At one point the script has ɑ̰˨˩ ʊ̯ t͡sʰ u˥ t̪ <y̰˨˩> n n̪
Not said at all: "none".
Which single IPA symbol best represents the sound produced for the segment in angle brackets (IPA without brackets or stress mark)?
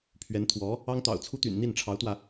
y̰˨˩